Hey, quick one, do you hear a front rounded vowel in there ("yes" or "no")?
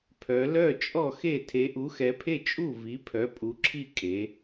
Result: yes